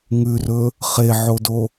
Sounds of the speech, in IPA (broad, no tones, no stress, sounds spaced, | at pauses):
ŋ ʉ r ɵ | χ e ʕ o d o